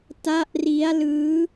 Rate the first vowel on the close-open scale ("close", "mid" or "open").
open